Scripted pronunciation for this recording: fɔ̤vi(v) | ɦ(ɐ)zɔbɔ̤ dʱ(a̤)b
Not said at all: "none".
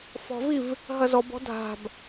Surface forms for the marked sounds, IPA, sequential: v, ɐ, a̤

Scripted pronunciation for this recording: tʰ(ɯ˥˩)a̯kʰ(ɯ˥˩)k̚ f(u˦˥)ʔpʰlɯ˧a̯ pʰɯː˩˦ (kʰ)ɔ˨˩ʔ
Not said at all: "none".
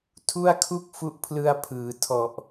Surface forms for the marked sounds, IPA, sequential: u˥˩, u˥˩, u˦˥, tʰ

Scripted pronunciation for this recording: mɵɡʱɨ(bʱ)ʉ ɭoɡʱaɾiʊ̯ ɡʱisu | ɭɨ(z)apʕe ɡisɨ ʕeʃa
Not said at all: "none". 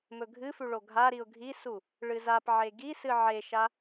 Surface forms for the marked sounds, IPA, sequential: f, z

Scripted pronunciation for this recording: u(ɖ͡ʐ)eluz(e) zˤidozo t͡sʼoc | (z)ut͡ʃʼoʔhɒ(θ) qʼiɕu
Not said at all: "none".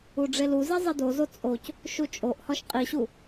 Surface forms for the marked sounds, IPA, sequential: ɖ͡ʐ, i, ʃ, ʃ

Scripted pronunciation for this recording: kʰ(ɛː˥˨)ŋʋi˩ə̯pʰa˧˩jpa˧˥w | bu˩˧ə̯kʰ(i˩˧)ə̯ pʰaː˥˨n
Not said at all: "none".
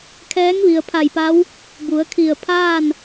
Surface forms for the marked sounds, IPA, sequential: ɛː˧˥, i˧˩

